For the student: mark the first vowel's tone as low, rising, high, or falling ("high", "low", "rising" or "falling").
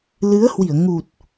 rising